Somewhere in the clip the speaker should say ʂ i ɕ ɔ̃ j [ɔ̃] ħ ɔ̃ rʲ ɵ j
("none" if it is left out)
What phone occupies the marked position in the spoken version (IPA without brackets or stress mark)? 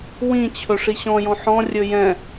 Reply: ɔ̃